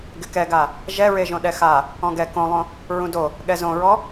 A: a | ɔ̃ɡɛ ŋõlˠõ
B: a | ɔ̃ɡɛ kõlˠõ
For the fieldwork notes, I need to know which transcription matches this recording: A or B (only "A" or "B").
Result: B